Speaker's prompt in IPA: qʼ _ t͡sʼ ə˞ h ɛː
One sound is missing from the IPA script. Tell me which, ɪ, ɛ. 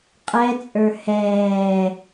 ɛ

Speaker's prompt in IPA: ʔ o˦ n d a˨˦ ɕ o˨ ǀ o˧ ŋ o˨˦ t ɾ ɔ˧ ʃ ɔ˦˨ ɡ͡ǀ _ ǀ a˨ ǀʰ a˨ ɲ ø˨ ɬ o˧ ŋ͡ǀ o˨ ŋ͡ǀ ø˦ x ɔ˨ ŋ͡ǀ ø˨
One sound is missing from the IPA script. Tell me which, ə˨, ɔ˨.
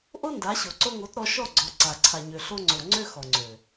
ɔ˨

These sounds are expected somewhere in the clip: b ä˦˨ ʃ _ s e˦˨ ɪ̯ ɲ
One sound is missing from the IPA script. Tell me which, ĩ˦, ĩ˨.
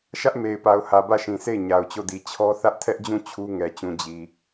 ĩ˨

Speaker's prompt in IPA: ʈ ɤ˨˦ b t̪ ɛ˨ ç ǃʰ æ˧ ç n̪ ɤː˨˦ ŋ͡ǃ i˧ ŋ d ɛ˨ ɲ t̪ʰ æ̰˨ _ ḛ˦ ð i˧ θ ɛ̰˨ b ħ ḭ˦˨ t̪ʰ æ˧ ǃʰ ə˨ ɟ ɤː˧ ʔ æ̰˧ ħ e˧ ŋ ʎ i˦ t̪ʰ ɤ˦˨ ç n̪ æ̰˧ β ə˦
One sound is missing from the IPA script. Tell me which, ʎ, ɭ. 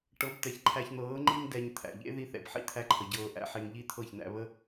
ʎ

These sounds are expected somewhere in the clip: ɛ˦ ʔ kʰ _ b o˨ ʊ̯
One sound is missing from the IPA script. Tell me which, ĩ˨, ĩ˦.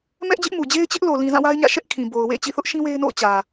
ĩ˨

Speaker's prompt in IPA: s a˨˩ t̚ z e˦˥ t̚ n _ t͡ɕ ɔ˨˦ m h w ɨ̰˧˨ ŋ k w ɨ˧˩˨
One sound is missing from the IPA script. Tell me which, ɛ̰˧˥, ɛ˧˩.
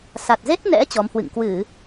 ɛ̰˧˥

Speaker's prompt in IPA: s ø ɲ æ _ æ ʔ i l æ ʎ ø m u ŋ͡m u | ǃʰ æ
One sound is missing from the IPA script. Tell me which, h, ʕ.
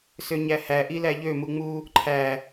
h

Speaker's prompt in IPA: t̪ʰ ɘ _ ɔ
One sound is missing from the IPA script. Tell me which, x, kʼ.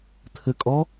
kʼ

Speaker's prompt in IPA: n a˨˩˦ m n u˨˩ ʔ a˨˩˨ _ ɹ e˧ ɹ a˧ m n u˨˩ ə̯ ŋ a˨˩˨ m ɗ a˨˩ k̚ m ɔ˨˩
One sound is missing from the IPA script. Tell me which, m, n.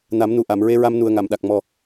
m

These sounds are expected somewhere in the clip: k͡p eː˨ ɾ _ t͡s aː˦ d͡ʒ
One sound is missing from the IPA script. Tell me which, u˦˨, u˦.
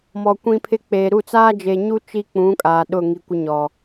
u˦˨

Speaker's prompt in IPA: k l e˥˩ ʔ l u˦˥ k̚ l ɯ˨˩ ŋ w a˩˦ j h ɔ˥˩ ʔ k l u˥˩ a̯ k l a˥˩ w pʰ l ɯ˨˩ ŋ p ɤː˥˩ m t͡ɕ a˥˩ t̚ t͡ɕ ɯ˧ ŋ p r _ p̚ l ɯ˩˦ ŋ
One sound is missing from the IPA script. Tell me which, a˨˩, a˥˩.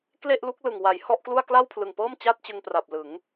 a˨˩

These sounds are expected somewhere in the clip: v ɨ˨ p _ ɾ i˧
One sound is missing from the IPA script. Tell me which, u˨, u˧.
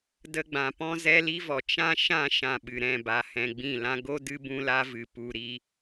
u˧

